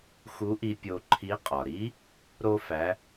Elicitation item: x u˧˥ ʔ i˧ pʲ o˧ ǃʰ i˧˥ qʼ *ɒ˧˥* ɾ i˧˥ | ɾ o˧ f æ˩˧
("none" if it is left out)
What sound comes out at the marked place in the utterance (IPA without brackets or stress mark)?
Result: ɒ˩